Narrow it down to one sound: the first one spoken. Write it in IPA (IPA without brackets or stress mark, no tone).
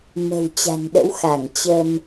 m